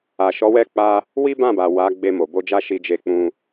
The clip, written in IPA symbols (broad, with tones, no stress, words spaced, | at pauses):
a˨ʃɔ˨˦wɛ˦˨k͡pa˧ | wi˦bã˦˨ba˨ wa˨˦ɡ͡be˧ mo˨bo˧d͡ʒa˦ ʃi˧d͡ʒe˧k͡pũ˧